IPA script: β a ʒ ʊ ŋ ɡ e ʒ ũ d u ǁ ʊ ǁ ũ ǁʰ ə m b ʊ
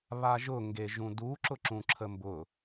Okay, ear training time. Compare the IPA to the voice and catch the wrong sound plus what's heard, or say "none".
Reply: none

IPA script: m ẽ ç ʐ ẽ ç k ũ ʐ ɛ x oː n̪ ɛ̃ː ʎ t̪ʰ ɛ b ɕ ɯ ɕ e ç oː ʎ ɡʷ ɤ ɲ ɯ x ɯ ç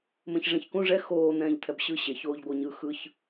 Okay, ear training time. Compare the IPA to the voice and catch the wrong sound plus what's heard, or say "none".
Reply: none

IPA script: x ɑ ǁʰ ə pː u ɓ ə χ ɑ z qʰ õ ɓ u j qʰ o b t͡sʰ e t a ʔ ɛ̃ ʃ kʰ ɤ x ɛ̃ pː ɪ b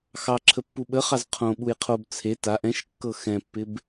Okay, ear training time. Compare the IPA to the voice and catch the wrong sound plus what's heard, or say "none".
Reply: kʰ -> kː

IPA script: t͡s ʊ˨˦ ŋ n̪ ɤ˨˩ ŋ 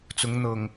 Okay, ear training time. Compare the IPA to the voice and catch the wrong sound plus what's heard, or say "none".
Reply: none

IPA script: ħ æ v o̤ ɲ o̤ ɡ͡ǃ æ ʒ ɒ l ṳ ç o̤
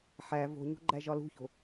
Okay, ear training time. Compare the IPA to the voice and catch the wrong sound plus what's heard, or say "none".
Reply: none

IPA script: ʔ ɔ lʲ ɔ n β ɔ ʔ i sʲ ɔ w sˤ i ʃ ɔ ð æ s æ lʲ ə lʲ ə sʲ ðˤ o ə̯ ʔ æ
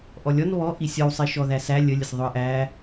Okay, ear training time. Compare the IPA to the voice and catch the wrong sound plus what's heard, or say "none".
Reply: none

